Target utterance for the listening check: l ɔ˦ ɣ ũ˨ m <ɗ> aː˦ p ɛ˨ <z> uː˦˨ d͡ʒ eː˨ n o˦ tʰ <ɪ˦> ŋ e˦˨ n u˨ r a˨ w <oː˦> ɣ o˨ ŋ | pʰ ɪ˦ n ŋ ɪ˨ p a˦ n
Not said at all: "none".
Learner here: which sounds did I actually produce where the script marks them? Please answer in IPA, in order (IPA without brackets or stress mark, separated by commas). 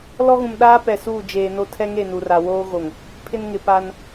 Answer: ɗ, s, ɛ˦, oː˦